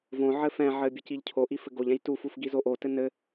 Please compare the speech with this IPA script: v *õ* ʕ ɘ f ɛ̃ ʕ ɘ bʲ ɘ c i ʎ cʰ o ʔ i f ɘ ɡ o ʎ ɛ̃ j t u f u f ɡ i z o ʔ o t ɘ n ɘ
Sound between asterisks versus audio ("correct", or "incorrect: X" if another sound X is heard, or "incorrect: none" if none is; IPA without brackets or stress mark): correct